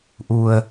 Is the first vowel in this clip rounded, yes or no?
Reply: yes